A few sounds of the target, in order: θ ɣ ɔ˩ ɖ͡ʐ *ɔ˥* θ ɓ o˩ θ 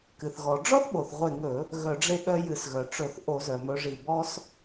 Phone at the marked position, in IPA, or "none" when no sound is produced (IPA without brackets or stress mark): ɔ˥